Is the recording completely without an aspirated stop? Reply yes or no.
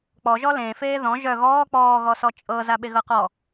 yes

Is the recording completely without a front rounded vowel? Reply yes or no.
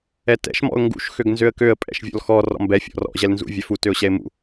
no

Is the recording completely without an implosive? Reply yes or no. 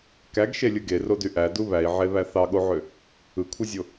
no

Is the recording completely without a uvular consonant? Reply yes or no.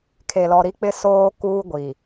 yes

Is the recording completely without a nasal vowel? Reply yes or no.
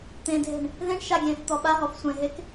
no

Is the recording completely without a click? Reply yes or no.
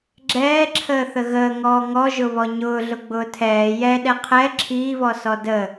no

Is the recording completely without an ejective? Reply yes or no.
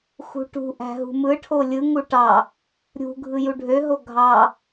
yes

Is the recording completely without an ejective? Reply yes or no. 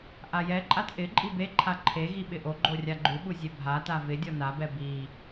no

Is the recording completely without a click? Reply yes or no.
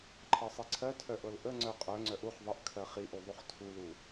no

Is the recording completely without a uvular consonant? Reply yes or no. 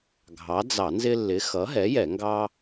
yes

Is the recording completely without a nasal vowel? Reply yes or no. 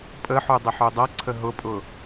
yes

